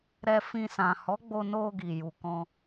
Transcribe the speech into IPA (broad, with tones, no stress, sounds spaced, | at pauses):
ɾ ɛ˧ f ĩ˧ s ã˨ h ɔ˨˦ ɡ͡b o˧ n o˧ ɡ i˨ j u˨ k ɔ̃˧